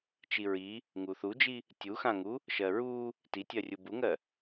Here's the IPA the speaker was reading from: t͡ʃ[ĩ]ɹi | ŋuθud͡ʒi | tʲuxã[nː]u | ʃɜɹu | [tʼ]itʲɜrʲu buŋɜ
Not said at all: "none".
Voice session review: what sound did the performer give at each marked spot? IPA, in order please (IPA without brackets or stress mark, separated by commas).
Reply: i, ŋ, t